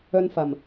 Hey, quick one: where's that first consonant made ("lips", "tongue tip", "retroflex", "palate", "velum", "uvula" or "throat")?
tongue tip